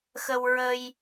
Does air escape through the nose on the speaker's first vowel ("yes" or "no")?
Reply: no